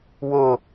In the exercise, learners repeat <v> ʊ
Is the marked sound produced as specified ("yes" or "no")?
no